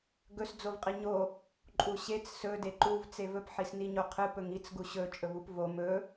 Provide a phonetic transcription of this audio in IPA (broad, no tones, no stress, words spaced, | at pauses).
ɡɵs d͡zovqʼiɲo | ǃʼuɕet͡s sɵ deǃuv t͡sevɵp ħisniɲoqʰɨ pɵŋit͡s ɡuɕɵ t͡ʃʼɵvupvo mɵ